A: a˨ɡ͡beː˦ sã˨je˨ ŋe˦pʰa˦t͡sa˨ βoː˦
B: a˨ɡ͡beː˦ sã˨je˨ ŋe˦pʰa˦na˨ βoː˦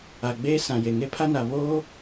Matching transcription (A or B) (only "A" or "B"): B